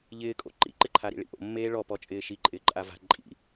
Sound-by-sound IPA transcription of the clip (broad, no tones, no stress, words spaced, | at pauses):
ʎɪːkʼo̰ ǃḭǃɪǃʰaɾḭ ɭḭʔo̰ mːeːɭɔpɔ t͡ʃʼɪːʃi ǃʼɪːǃʼava̤ ǃʼḭ